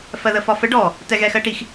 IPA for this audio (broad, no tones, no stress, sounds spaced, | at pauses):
f ɜ ð ə f ɒ f ə ɖ ɔ | t ɛ ɣ ɛ x ɜ ʈ i x